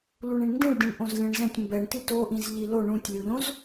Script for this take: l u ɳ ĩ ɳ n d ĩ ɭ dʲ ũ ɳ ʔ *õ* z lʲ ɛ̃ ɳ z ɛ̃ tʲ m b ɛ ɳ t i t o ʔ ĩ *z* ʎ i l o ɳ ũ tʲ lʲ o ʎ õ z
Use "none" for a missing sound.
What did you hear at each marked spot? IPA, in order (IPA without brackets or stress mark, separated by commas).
õ, z